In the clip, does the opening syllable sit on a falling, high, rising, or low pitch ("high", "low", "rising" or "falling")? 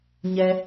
high